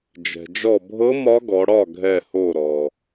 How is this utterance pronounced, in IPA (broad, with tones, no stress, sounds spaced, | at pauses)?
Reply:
d͡ʒ ɛ̤˩ d͡ʒ ɔ˧˩ bʱ ɤ˧˥ m ɒ˧˥ ɡ ɔ˩˧ ɽ ɒ˥˩ ɡʱ ɛ˧˩ h o˧˩ ɾ ɔ˩